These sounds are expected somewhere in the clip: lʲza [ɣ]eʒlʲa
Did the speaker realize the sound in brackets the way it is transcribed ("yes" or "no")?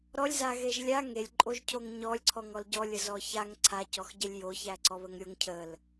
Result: yes